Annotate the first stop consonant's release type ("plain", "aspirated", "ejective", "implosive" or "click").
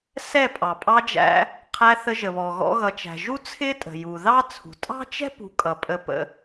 ejective